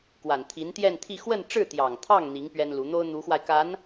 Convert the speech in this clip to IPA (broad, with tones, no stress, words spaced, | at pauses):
kwa˨˩nt̪ʰi˧˥nt̪jɛ˥˧nt̪ʰi˥˧ xwə˥˧nʈ͡ʂɻ̩˥˩t̪jɑ˨˩ŋt̪ʰɑ˥˩ŋ n̪i˧˥ŋ pɥɛ˥nlu˧˥ n̪o˥ʊ̯n̪u˧˥xwa˧ɪ̯ka˧˥n